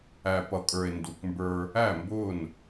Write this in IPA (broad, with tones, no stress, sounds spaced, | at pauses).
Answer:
æ˨ p ʌ˨ kʼ ə˞˨ e̯ n d u˨ k m b ə˞˦ | æ˦˨ m b ʊː˦˨ n